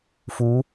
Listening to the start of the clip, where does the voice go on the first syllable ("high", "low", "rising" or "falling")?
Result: rising